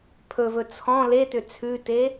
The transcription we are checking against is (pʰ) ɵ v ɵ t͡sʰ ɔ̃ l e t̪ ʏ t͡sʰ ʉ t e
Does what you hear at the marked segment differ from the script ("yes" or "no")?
no